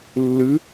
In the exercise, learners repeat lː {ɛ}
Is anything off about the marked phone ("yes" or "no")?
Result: yes